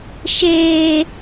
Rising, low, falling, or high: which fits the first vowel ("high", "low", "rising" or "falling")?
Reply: high